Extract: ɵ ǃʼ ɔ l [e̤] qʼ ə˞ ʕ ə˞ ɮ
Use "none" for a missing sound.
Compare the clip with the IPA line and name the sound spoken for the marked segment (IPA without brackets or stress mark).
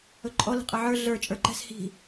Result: i̤